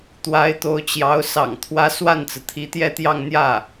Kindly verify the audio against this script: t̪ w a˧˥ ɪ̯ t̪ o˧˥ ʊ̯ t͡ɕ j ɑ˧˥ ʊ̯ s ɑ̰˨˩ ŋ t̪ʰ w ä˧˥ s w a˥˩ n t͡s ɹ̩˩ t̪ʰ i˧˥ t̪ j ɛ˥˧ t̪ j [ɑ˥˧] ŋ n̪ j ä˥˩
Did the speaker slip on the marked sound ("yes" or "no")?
no